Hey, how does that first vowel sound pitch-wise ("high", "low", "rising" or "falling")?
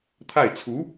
falling